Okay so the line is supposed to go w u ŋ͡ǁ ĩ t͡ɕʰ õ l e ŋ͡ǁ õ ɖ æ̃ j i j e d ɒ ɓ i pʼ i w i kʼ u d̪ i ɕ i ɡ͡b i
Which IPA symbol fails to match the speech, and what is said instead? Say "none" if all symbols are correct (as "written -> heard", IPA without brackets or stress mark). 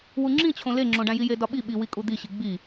pʼ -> ɓ